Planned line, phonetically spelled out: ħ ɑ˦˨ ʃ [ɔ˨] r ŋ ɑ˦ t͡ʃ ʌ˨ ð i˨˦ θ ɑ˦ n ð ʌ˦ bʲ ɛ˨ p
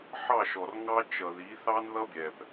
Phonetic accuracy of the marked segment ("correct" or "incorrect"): correct